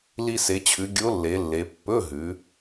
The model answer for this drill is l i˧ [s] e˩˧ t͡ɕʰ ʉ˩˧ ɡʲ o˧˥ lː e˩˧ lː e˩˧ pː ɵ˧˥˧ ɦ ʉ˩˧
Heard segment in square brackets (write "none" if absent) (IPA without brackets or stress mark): s